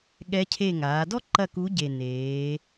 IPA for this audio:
ɠ ɛ˧˥ cʰ e˦˨ ŋ aː˩˧ d ɔ˥ ǃ ɐ˦˨ k u˧˥ ɟ e˨˩ n eː˩˧

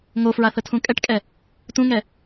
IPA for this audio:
ŋ o f ɹ a θ ə tʰ ũ kʼ ɛ ʈ kʼ ɛ | t ũ ŋ ɛ

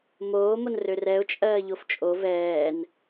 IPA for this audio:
m oː m o n r ø r ɛ ʊ̯ t͡ʃʼ ɜː ʎ o f t͡ʃʼ o v ɛː n

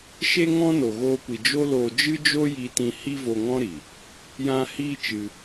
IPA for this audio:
ʃ e˦ ŋ ɔ̃˦ n o˨ ɣ oː˧ kʷ i˨ d͡ʒ o˦ l oː˧ d͡ʒ ɨ˦ d͡ʒ o˦ j i˧ t ĩ˧ h i˦ v o˧ ŋ ɔ̃˦ ɾ i˨ | j ã˧ h iː˧ t͡ʃ ɨ˧

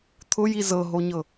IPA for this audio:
t̪ʰ ʊ j i z ɤ ɦ o ɲ ɤ

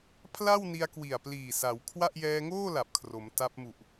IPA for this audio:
pʰ l a˥˩ w n i˧ a̯ k w i˨˩ a̯ p l iː˨˩ s a˩˦ w kʰ w a˥˩ ʔ j ɛː˧ ŋ oː˥˩ l a˨˩ p̚ kʰ r o˩˦ m t a˦˥ p̚ m u˨˩ ʔ

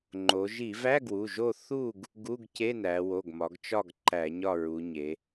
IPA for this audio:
ŋ͡ǃ o˩˧ ʒ i˧˩˧ v æ˧˥˧ ɡ w u˩˧˩ ʒ o˦˨ θ u˦˨ ɡ | ɡ u˧˥˧ ɡ c e˧˥˧ n æ˩˧ w o˩˧˩ ɡ m ɒ˩˧ ɡ t͡ʃ ɒ˦˨ ɡ ǃ æ˧˩˧ ɲ ɒ˦˨ ɹ u˩˧ ɲ e˩˧

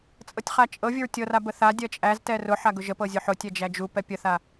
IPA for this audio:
t͡sʼ ɤ tʲ χ a t͡ʃʼ ɤ vʲ ʊ ɹ tʲ ɤ r a b ə θ a dʲ ɜ t͡ʃʼ æ z t ɛ r ʊ ħ a ɡ ʊ ʒ ə p ɤ zʲ ʊ ħ ʊ tʲ ɛ d͡ʒ æ d͡ʒ u p ɛ pʲ ə θ a

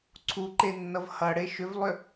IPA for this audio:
ǀʰ u ǃ e nː ʌ v h ʌ ɽ e ʃ ʏ v lˠ ʏ

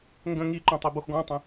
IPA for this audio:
ŋ ɡ ə̃ ŋ i ǃ õ tˤ e b o x ɡ ɔ̃ tˤ ə̃

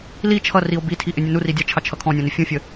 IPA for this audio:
l i t͡ʃʰ ʌ r i o̯ b i tʰ i ʔ ɪ nʲ ʊ n u r i dʲ ɑ t͡ʃʰ ɑ t͡ʃʰ ʌ kʰ ɔ̃ nʲ ɔ̃ n ɪ fʲ ũ fʲ ə

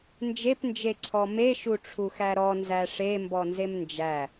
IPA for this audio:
n d͡ʒ e p n d͡ʒ e ǀʰ ɔ m e ʃ u ʈ͡ʂʰ u x æ ɾ ɔ n z æ ʂ e m b ɔ n z e m n d͡ʒ æ

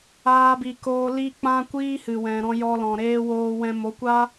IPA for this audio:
aː˧ b i˨ k oː˧ l i˦ k͡p ã˦ kʷ iː˦ h ɨ˨ w ɛ̃˨ ɾ ɔ̃˧ j ɔ˧ l ɔ̃˨ ɾ eː˧ w oː˧ w ɛ̃˧ m o˨˦ kʷ a˦

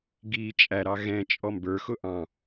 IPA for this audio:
ɡ i t͡ʃʼ æ ɾ ɑ ɣ ɛ̃ t͡ʃʼ ɔ m b ə˞ x ʊ ʔ ɑ̃

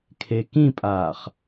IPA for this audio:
kʰ e k ĩ pʼ aː χ

